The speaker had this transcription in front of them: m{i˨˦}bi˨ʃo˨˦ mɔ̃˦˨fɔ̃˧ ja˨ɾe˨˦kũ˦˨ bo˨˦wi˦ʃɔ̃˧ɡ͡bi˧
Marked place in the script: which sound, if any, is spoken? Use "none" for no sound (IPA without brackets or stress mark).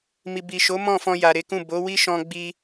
i˨